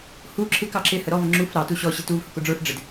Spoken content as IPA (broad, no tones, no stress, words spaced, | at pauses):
hu ǁʰɪkɑ ǁɪhə ɾɔvə ŋ͡ǁuf ɾɑtu ɕɔɕɪ tuvhʊkʊ ɖ͡ʐə˞f ɖ͡ʐɪd